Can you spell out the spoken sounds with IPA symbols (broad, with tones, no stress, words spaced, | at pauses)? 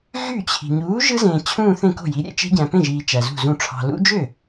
ɣy˥˩t͡ɕʰi̤˨ ɲuː˨˥ ʒɯ˦˥zẽː˨ t͡ɕʰũː˥˧θẽ˥˩ko̤˥˩ji˨˥ ɾʲḛ˦˥t͡ʃe̤˦˥ɟæ̃˨ pẽ˥˩ʒiː˨ t͡ʃæ˨zṳ˥˩zũ˥˩ ʈ͡ʂʰɑ̤˨lṵ˦˥d͡ʒø˥˩